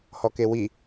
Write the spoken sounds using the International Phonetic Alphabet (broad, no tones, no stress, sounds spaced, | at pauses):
h ɔ k e w i